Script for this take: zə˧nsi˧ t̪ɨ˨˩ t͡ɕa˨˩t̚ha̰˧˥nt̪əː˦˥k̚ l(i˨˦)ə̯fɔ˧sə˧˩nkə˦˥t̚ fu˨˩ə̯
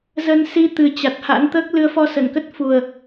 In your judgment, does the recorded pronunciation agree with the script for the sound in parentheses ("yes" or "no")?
no